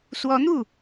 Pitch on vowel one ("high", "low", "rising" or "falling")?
rising